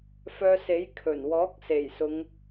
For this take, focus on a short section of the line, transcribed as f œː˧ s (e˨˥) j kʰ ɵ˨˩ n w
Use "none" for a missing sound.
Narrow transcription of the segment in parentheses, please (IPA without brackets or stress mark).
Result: e˨˥